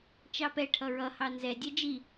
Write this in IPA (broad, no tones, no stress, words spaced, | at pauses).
t͡ʃɑpɛ ʈʰʌɹʌ hɑnzɛdʲɛ d͡ʒi